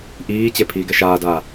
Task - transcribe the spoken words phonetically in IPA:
ʔ iː t͡ɕ e pʰ iː ɡ ɛ ʃ aː d aː

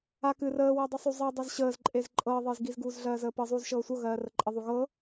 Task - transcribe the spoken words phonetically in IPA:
a k ɨ r əː w ɜ dˤ ɨ sˤ u zˤ ɤ dˤ e z ɕ əː z ǃʼ e z ǃʼ ɤː ðˤ ɨː z ɡ i z ɡ uː z ɮ ɜː z əː p ɤ zˤ uː z ʃ ɤː sʷ ɤ ɣ ɜː r ə ǃʼ ə ðˤ u ɣ ɤ

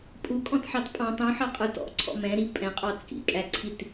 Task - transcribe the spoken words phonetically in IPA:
pʼ u kʼ ɔ̃ t ħ ɑ t pʼ ɑ̃ tˤ ũ ħ ɑ qʼ ə˞ t ɔ̰ ǀʰ ɔ̰ m ɛ̃ ɾ i pʼ ɛ̃ qʼ ɑ t͡sʼ ḭ kʼ æ ǀʰ i t

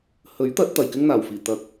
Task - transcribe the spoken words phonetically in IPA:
h ɵ˨˥ ɥ t̪ ɐ˨˥ t̚ t̪ ɐ˨˩ j k ɪ˥ ŋ n̪ aː˨˩ w f iː˨˩ t̪ ɐ˨˥ k̚

